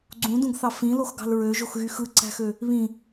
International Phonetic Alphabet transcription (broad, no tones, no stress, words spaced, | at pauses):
ɡ͡ǀũdũɡθɑ fĩloxɡɑ̤l ɹøʒoxɣy xɯǀæ̤xø | βĩ